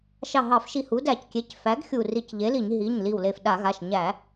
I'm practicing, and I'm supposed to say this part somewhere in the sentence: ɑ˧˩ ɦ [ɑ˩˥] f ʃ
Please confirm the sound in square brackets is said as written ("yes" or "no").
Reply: no